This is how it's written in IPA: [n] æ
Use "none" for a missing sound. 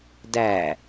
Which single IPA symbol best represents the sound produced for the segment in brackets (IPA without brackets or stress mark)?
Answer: d